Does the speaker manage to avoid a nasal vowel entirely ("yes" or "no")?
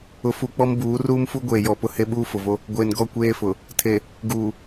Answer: yes